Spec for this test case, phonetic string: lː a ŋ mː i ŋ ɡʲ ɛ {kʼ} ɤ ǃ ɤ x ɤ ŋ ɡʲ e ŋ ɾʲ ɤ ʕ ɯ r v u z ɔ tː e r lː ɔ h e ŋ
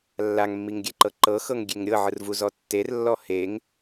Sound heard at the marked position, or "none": ǃ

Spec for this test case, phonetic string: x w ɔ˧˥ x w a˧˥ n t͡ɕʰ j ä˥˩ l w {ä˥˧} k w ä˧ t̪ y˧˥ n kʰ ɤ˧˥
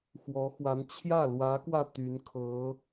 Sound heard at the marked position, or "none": ä˧˥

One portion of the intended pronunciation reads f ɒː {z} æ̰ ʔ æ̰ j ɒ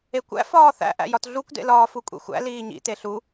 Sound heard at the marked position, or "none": θ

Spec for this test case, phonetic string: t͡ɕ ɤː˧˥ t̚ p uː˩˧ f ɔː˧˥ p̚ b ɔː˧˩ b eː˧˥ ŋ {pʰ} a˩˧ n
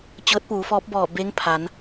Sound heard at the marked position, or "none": pʰ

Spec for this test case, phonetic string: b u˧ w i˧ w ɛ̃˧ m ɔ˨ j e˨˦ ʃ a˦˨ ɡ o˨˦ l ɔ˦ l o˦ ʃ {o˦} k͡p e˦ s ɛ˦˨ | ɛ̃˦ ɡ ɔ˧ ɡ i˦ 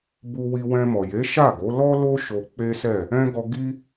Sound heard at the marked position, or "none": o˧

